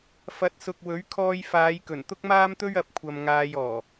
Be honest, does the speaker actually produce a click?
no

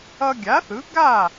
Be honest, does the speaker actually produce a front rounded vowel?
no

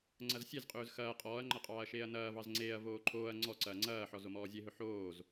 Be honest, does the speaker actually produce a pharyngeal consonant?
yes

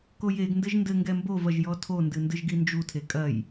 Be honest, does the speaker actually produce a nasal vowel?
no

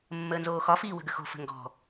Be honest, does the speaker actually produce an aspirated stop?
no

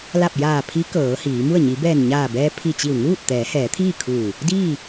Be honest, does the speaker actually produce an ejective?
no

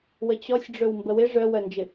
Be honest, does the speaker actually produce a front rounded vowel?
yes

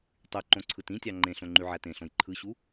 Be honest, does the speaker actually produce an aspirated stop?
yes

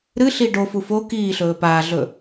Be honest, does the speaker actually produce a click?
no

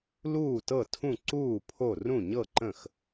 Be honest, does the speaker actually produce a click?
yes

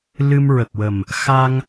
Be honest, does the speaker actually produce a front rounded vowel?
no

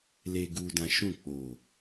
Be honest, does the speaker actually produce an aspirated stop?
no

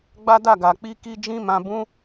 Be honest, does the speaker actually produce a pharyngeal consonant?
no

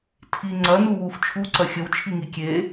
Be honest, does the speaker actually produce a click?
yes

